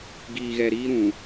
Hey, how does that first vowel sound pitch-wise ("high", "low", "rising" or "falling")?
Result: low